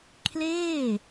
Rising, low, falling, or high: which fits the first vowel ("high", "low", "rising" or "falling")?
falling